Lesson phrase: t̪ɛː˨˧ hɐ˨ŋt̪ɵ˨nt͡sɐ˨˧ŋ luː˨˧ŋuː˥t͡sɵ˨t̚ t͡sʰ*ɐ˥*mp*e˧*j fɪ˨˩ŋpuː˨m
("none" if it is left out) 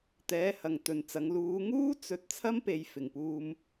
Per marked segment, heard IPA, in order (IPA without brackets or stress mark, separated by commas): ɐ˥, e˨